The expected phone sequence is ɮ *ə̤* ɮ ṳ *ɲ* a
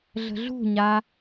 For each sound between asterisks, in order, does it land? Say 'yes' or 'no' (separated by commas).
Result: yes, yes